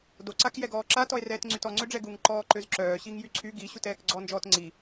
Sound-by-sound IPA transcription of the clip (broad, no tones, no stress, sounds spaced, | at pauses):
d o ǀ a k j ɛ ɡ ɔː ǁ a t ɔ e̯ r ɛː t ŋ͡ǀ y t ɔ ŋ͡ǀ ø ɖ͡ʐ ɛ ɡ u ŋ ǃ ɔː ǃ ø z ǁ œː ɕ i ŋ j y ǀʰ y ɡ i ɕ u t ɛː k ɡ͡ǀ ɔ n d͡ʒ ɔː t ŋ͡ǀ i